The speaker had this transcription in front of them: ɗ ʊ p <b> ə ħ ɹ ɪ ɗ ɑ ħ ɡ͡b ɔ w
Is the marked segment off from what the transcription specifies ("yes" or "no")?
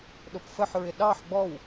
yes